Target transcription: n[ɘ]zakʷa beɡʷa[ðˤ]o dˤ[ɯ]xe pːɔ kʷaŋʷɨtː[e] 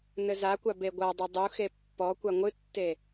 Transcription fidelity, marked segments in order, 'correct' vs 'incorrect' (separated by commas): correct, incorrect, incorrect, correct